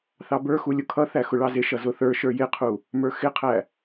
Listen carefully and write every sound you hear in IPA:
θ ɑ b ə˞ x u lʲ ʊ kʰ ʌ θ æ x ʊ ɭ ɑ z ɪ ʃ ʌ z ʊ θ ə˞ ʃ ə˞ j ɪ qʰ u | m ə˞ x ɪ qʰ æ

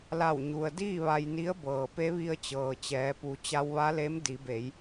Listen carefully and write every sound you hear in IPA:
l a˧˩ w ɲ u˩ ə̯ d iː˥˨ ʋ a˧ j n i˧˥ ə̯ b ɤː˩ p e˧˥ ʋ i˧ ə̯ t͡ɕ ɤː˩ t͡ɕ ɛː˩˧ p u˩˧ t͡ɕ a˧ w ʋ a˧˥ l e˧˥ m d i˩˧ b e˩˧ j

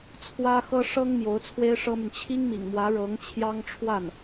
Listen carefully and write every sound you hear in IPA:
t͡sʰ w ä˥ x ɤ˥ ʂ ɤ˥ ŋ m j o˧˥ ʊ̯ t͡sʰ w e˥ ɪ̯ ʂ ɤ˥ m y˨ n t͡ɕʰ i˥ ŋ m ḭ˨˩ ŋ m w ä˧˥ ɻ ɤ˧˥ ŋ t͡ɕʰ j ɑ˥ ŋ ʈ͡ʂʰ w a˥˩ n

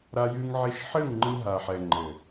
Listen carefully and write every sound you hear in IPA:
ɾ a˧ j ɨ˧ ŋ ʕ i˧ ʃ ħ ɘ˦˨ ŋ ŋ͡ǃ ɨ˧ ɦ a˨ ħ ɛ˨ ŋ͡ǃ ɘ˨

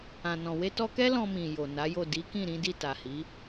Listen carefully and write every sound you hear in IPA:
ã˨ n ɔ̃˨ w e˧ t ɔ˧ k ɛ˦ l ɔ̃˧ m ĩ˨ j o˨ n a˨˦ j o˦˨ d i˨˦ k ĩ˦˨ ɾ ĩ˨˦ d i˦˨ t a˨ h i˨˦

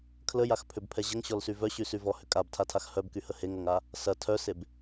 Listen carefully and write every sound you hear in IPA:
kʰ l ə j a x pʰ ʏ b pʰ ɛ ʑ ə ŋ ɕ ɔ l s y v œ ɕ y s y v ɔ h ʏ kʼ a b tʰ a tʰ a x h œ b k y h ə h e ŋ ɐ ŋ a | s ɐ tʰ œ s e b

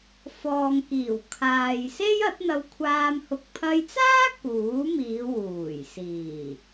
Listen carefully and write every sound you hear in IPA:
f ɔː˨ ŋ k iː˨˩ w kʰ aː˨ j s e˥ j ɐ˨˥ t̚ n̪ ɐ˧ w kʷʰ aː˧ m h ʊ˨ k̚ pʰ ɐ˧ j t͡s aː˥ k uː˨˥ m iː˨˧ w uː˨˩ j s iː˨˩

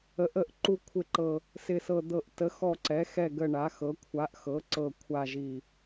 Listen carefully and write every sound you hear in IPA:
ə˩˧ ʔ ə˩˧ ʔ ǃ u˨˩ kʷʰ ɪ˨˩ ǃ ɤ˨˩ | s ɪ˨˩ s ɤ˨˩ d̪ ɤ˨˩ ʔ t ə˩˧ x ɔ˨˩ ǀ ɛ˩˧ x ɛ˨˩ ɡ ə˨˩ ɳ a˩˧ x ɤ˩˧ kʷʰ a˩˧ ʔ x ɤ˩˧ ǀ ɤ˨˩ kʷʰ a˨˩ ʒ i˨˩

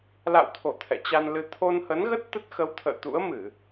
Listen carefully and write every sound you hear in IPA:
l a̰˧˨ w t̪ʰ o˧˩ t̪ʰ ɛ̰˧˨ t͡ɕ a˧ n l ɨ˧ t̪ʰ o˧ n h ə˨˦ n ɣ ə˦˥ t̚ t̪ ə˦˥ t̚ x ə˨˦ w t̪ʰ ə̰ː˧˨ t̪ ṵ˧˥ ə̯ m ɨ˧˩˨

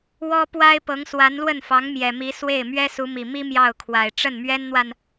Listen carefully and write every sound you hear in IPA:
w ɔ˥ p w a˥ ɪ̯ p ɤ˧˥ ŋ s w a˧˥ n l w ə˥˩ n f ɑ˧˥ ŋ m j ɛ˨˩ m i˧˥ s w e˥˩ ɪ̯ m ɥ ɛ˥ s u˧˥ m i˨˩ m i˥ m j ɑ˥˩ ʊ̯ kʰ w a˨˩ ɪ̯ ʈ͡ʂ ə˥˩ n m ɥ ɛ˥ n n̪ w a˨ n

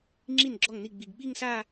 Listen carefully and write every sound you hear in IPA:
ŋ͡ǁ i˥˩ n ɡ͡ǁ ɔ˥˩ ŋ n i˥˩ ɡ͡b i˨˩ ɡ ɓ i˥˧ ŋ s a˥˧

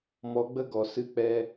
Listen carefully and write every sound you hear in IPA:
m ɔ˧ ɡ͡b ə˦ ɡ ɔ˨ s ɨ˧ k͡p ɛ˦

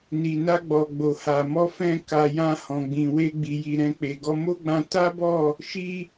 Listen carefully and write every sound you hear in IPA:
n i˨ n a˧ ɡ͡b ɔ˨ ɡ͡b o˨ h a˨ m ɔ˧ f ɛ̃˧ k a˨ j ã˧ h ɔ̃˨ ɡ͡b ĩ˨ w e˧ ɡ͡b i˨ j i˨ ɾ ɛ̃˧ k͡p e˨ ɡ ɔ˧ m o˦ ɡ͡b ã˧ t a˦ b ɔ˦˨ | ʃ i˦

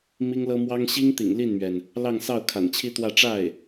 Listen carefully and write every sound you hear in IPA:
m i˥ ŋ l ɤ˥ m w ɑ˥ ŋ ɕ i˥ ŋ t̪ ḭ˨˩ ŋ l i˥˩ n m ɥ ɛ˩ n | l ɑ˥˧ ŋ s ɑ˥˩ ʊ̯ kʰ a̰˨˩ n t͡ɕʰ i˥ t̪ w ä˥˧ ʈ͡ʂ a˥˩ ɪ̯

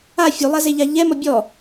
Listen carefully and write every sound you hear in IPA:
a fʲ u lˠ a z e ʎ a ʎ ɛ m ɔ bʲ ɔ

